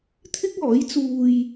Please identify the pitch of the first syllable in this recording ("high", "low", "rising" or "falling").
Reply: high